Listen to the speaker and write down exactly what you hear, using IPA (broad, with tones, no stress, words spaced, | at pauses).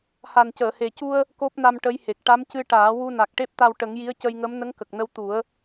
ha˨˩ncəː˨˩˨he˨˩cu˧ə̯ | ko˦˥p̚na˧mʈə˧˥jhe˨˩k̚ ʈa˧˥mcɨ˧ʈaː˨˩˦ wu˧ na˨˩k̚ʈe˦˥p̚t̪a˧w ʈə˨˩˦ŋji˧˥ə̯ cə˧jŋə˧˥m nə˧˥ŋkə˨˩k̚nə˧w t̪u˨˩˦ə̯